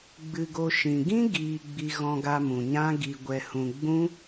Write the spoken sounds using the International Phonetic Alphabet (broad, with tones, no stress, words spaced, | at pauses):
ɡ͡bɨ˧ɡo˧ ʃĩ˨ ɡĩ˦ɡiː˨ɡ͡bi˨ ɣɔ̃˧ɡa˧mũ˨ɲã˦ ɡi˧ɡʷɛ˧hũ˧ ɡ͡bũ˦